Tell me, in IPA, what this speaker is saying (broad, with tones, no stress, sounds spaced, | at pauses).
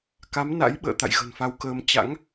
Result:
k a˨˦ m n a̰˧˥ j ɓ ə̰ː˧˨ t̪ a̰˧˨ j ɣ ə̤˨˩ n f a˧ w k əː˧ m t͡ɕ a̰˧˥ ŋ